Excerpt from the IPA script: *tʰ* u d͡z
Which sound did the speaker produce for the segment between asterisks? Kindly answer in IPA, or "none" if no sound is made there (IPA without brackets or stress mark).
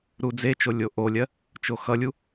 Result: ɾ